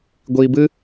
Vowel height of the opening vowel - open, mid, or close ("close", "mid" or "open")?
close